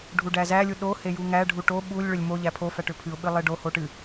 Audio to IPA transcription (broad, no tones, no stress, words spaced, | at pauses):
ɖʱuɖæzælʲu ɗo hejuŋæɖʱu ʈo ɓulʲ ɭʏlʲmoʎæ pʰofæʈ ʏpʰɨʊ̯ɓɨ lˠeɖoho ʈɨ